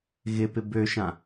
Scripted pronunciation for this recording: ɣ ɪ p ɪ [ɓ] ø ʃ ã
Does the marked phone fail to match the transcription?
yes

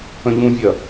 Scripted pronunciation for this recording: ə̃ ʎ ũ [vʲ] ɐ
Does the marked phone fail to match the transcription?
no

